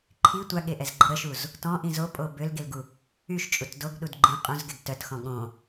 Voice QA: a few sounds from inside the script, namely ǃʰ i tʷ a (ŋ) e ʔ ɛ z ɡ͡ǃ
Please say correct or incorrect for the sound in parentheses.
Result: incorrect